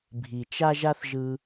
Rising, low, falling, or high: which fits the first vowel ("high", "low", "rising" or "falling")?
low